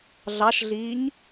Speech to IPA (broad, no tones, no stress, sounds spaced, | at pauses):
ɮ ɑ ʃ ɮ iː ɲ